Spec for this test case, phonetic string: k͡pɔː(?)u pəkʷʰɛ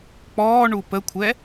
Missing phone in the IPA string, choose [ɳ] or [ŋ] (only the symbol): ɳ